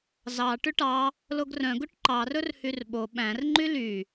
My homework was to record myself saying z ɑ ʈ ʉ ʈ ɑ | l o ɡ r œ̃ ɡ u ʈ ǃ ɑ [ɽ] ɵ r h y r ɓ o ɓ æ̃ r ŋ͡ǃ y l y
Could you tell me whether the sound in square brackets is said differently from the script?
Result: yes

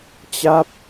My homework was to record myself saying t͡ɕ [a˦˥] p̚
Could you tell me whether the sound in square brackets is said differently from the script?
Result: yes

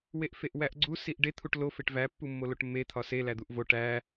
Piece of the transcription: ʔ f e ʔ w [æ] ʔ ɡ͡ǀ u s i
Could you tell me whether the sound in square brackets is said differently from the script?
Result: no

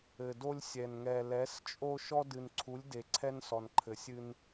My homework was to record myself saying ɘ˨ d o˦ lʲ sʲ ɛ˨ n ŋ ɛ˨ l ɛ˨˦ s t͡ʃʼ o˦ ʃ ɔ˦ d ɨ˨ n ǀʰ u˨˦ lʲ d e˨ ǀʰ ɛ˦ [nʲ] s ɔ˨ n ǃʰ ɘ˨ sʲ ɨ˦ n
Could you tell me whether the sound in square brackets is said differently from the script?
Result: yes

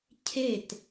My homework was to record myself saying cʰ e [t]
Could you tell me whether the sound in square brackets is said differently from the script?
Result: no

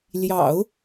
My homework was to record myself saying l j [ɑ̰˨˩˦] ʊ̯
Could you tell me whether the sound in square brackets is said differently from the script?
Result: no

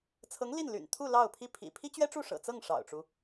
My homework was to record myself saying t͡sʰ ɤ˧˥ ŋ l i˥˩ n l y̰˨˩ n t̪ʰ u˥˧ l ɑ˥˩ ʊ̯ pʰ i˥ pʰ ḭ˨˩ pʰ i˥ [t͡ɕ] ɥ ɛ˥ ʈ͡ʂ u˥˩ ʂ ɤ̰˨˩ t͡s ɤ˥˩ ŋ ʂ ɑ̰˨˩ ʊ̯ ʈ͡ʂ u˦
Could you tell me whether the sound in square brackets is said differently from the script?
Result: no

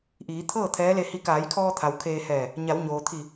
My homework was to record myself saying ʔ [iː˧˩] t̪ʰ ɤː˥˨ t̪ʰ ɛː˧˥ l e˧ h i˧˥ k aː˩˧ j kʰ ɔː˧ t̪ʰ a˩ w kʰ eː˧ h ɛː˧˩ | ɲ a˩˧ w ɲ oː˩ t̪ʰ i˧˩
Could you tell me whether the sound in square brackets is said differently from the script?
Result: yes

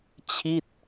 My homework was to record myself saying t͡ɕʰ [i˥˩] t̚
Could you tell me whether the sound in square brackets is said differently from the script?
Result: no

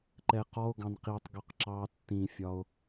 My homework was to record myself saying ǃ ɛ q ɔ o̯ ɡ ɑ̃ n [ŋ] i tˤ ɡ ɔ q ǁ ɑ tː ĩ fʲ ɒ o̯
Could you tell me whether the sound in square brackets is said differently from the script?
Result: yes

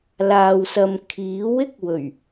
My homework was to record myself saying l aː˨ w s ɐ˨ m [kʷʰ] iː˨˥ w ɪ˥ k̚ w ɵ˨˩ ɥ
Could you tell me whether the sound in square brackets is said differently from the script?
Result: yes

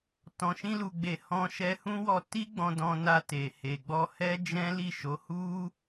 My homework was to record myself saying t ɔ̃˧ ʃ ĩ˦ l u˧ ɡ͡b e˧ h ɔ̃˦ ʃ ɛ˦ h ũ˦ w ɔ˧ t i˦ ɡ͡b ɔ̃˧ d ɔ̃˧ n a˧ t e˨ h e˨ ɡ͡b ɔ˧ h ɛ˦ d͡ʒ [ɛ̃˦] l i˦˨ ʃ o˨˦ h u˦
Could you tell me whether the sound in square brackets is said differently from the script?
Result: no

